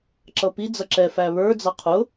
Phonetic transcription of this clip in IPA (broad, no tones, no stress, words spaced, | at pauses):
ǁʌpi d͡zʌǁɛ fæβə˞ d͡zɑqʰʊ